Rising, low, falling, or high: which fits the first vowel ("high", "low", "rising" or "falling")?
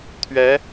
rising